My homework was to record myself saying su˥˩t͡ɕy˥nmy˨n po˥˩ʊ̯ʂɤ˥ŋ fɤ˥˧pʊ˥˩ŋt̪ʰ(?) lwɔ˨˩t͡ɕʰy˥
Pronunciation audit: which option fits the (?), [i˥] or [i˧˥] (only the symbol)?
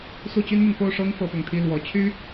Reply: i˥